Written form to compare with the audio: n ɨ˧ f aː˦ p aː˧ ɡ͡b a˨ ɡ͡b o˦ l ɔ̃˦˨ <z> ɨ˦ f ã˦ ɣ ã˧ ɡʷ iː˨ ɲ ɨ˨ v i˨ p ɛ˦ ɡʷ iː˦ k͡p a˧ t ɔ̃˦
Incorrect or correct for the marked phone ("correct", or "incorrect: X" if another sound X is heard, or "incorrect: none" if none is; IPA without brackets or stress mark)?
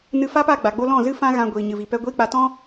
correct